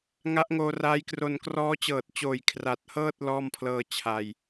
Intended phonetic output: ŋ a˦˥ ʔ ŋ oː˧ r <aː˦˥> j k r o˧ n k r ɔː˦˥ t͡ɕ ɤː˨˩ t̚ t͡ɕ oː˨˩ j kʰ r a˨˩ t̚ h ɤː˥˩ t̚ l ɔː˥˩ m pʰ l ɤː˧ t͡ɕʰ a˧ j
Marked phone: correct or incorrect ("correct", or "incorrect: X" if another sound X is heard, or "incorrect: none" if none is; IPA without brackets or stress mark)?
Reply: correct